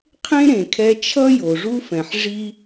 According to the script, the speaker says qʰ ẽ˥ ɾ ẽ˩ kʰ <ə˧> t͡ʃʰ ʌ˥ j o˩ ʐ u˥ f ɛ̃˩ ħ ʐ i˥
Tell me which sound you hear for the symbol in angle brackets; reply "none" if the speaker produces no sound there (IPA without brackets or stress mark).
ɛ˧